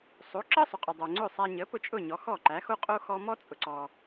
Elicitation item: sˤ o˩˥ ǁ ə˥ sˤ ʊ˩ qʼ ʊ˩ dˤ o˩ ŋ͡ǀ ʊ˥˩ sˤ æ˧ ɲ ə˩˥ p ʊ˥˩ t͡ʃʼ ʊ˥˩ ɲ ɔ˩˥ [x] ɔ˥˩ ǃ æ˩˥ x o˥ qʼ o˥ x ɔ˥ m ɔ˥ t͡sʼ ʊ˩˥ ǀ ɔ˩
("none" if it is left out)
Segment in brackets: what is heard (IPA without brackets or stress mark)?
x